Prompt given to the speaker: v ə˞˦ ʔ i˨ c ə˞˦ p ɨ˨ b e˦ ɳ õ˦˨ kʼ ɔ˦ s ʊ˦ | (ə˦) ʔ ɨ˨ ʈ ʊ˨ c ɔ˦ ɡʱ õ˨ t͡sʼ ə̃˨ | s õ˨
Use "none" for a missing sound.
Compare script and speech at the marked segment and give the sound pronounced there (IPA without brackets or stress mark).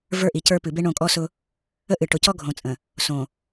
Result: ə˦